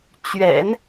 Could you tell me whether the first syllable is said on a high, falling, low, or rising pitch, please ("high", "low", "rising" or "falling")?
low